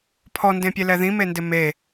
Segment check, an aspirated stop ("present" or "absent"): present